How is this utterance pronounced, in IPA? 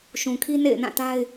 ʃ ũ˨ kʰ i˦ n ḛ˦˨ ɪ̯ n ã˦˨ t a˦ ɪ̯

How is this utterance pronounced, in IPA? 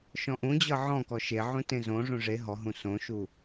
ʃ ɔ̃ ʔ ũ d͡ʑ ɤ ʕ ɔ̃ k ɔ ʃ e ʕ ũ t ẽ z õ ʐ ũ ʐ e ɦ ɔ ɦ ũ s õ ʃ u

